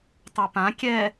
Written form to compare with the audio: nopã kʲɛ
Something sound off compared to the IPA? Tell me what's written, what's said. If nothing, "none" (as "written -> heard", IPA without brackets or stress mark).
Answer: n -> tˤ